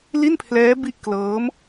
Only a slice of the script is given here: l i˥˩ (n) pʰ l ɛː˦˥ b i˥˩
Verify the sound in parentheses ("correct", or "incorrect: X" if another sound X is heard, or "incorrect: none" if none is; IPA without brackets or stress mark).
correct